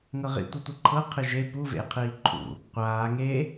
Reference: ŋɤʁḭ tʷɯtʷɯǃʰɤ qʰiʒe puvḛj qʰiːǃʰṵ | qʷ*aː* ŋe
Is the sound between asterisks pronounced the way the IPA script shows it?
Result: yes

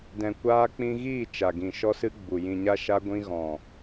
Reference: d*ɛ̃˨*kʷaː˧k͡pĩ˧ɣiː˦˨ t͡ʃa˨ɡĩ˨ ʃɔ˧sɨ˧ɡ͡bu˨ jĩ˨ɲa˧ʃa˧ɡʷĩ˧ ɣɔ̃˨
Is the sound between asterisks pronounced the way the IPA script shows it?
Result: yes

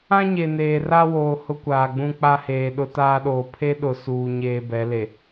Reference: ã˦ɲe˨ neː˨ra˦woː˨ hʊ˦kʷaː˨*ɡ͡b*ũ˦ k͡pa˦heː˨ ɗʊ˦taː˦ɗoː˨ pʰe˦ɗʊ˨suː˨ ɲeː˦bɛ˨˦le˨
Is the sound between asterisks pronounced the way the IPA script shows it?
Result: yes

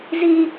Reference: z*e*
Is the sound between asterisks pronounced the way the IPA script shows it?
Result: no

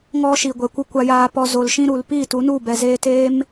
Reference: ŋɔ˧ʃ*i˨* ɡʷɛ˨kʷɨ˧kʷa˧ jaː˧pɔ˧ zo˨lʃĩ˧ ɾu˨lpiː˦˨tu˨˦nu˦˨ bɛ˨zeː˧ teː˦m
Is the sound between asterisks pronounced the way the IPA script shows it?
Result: yes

